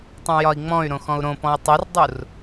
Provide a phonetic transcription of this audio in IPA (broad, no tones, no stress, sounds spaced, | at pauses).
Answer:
tˤ œ̃ j ɒ i̯ ŋ͡m ɔ̃ y̯ ɾ õ x ɔ̃ u̯ ɾ õ p ɔ̃ i̯ tˤ o r dˤ u r